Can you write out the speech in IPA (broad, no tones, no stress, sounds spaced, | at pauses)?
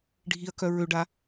ɖʱ i ɐ̯ k œ ɹ ø ɖ a